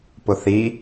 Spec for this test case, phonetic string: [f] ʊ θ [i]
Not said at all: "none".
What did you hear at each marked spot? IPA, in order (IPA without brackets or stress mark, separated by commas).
p, i